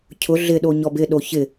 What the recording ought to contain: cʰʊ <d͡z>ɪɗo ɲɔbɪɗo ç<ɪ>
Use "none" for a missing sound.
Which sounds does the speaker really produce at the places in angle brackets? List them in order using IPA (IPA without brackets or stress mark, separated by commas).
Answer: ɮ, ɪ